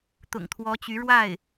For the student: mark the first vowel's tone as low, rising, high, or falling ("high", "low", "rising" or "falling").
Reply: low